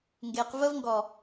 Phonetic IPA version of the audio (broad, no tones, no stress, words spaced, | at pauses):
ŋɡeq vəv ŋɡɔ